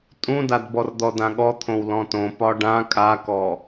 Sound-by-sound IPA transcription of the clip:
tʼũdadbɔr d̪ɔdãɠɔt̪ʰõw lɔ̃tõ pɒɖã kʼakɔ

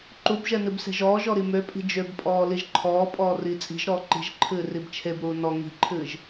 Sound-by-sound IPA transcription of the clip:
ǃubʒɛ nɨbse̤ʒɔːʒɔ ɾimøpʼi̤ d͡ʒøbpʼɔː liʒǃʰɔːpʼɔː riːt͡sʼi̤ʒɾɔː ǃi̤ʒǃʰɨː ribt͡ʃʰebɾuː nɔ ŋi̤ǃʰɨːʒ

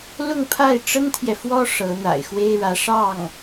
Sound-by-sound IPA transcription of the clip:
lʊ˥˧ŋpʰa˥˩ɪ̯ ʈ͡ʂə˥nt̪ʰjɛ˨fwɔ˥ ʂɤ˧˥ n̪a̰˨˩ɪ̯ xwe˥ɪ̯ɻä˧˥ ʂɑ˥˩ŋ

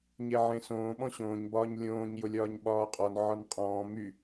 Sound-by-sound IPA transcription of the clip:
ɲeʕẽsõː ɓɔ̃ɕõːɲ bɒːɲlʲõːɲ jʊlʲɒːɲɓɒːqʼɔn ʕɒnqʼɔ̃ː my

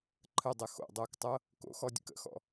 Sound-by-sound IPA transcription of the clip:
ǃʰədˤə xo̰dˤoːktˤɤ | ko̰xɔdʲə̰k ə̰xɔ̰

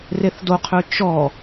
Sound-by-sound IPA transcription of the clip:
reθdoqʰø t͡ʃɔ

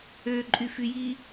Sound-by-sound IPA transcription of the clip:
øǃʼyfyji

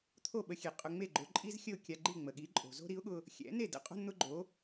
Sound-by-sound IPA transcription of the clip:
t̪ʰo˥˩ɓə˧xʲe˩ qʼʊ˧ŋ͡me˥˩ɡ͡ǃʊ˩˥ǃʼi˥z xʲə˥˩ʊ̯kʲa˧ɡ͡ǃi˥˩ ŋ͡mə˩ɠi˩˥ǃʼo̤˩ zo̤˥ɾi˩˥ʊ̯ɠʊ˧ | xʲɛ̰˩˥ ne˥˩də̰˥ qʼo̤˥nn̪ʊ˥ɡ͡ǃo˩˥

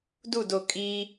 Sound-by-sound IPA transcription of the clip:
dudo kʼi

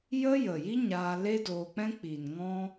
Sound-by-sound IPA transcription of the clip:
jə˦ jə˨ji˦ ɲaː˧le˦doː˧k͡pɛ̃˦ k͡pi˨nŋɔ̃˦

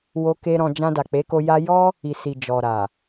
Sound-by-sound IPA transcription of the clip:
wo˦ke˦ɾɔ̃˧ d͡ʒã˧da˨k͡pe˨˦ko˧ ja˧jɔ˦ | i˨si˨ d͡ʒɔ˨ɾa˨

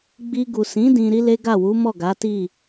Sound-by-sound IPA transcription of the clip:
ɡ͡bi˧ɡu˨ sĩ˨˦ dĩ˧ɾi˦le˦ ɡa˦˨wu˨˦mɔ˦˨ ɡa˨˦ti˦˨

